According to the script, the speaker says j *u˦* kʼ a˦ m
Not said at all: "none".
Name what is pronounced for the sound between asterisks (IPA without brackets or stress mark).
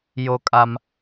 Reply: o˦